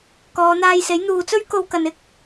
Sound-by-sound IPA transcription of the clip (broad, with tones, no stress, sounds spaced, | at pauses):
k ɔː˨˧ n̪ aː˧ j s e˨˥ j n̪ uː˨ t͡s ɵ˥ ɥ k o˧ w k ɐ˨ n ɪ˥ k̚